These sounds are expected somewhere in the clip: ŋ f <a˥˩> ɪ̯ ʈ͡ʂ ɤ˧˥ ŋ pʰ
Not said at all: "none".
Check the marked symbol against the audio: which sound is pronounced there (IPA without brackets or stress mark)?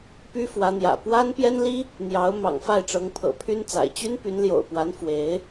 a˥˩